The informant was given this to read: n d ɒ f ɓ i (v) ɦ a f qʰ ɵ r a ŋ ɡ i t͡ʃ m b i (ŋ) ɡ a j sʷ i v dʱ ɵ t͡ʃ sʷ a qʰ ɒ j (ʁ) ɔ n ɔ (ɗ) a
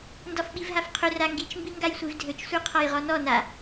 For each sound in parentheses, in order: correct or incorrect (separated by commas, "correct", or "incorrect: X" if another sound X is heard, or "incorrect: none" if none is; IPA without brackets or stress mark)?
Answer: correct, correct, correct, incorrect: n